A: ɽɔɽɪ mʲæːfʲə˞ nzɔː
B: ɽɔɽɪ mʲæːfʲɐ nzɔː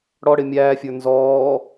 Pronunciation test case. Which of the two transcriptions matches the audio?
A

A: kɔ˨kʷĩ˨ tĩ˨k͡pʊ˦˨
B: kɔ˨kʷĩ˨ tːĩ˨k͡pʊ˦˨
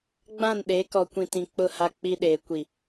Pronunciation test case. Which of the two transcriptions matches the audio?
A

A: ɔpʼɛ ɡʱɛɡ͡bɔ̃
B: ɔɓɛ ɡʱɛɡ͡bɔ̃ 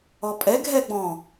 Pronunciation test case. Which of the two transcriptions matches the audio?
A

